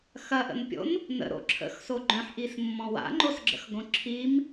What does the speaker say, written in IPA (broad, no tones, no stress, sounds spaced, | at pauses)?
x ɐ ʔ ə̰ n pʲ o̰ n | n ə̰ ɾ o̰ ǁʰ ə̰ x s o ɡ͡ǃ œ̃ ħ ʔ i s mː ɔ̃ w a̰ ŋ͡ǃ o s ɡ͡ǁ ə̰ x ɡ õ ǁʰ i m